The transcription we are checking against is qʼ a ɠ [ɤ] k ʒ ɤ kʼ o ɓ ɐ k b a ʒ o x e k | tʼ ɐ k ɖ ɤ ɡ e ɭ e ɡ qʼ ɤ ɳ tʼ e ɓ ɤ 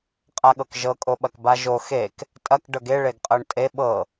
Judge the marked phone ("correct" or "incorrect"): correct